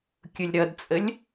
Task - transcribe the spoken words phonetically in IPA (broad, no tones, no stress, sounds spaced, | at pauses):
kʲ ʊ lʲ ɾ ʌ d t͡sʼ ə lʲ